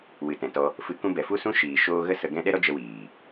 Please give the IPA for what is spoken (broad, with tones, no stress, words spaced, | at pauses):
wɨ˨tɛ̃˨tɔ˧ | fɨ˧ kũ˧bɛ˨ fu˦sũ˦ ʃiː˨ ʃoː˧ ɣə˦ sə˧ɡɛ̃˦ ɗɛ˦ɾɔ˦ d͡ʒə˧wiː˨